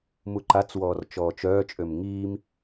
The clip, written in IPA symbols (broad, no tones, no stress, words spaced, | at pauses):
muǃat͡swɔːr t͡ʃɔːt͡ʃœːt͡ʃʼøm ŋiːm